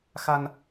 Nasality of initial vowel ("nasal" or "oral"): oral